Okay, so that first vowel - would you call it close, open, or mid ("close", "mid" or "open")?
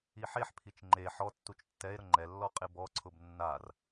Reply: close